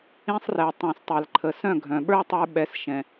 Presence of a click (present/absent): present